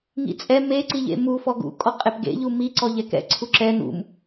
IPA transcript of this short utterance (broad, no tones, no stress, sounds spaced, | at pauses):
ŋ ḭ t͡sʼ ɛ m e ǀ i ʎ ḛ m u f ɔ ɡ ṵ kʼ ɔ qʼ e p ɡ ḛ ʎ u m i ǀ ɔ ʎ ɛ k ɛ̰ ǀʰ u ǁ ɛ n ṵ m